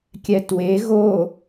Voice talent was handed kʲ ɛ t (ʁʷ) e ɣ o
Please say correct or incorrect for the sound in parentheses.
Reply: incorrect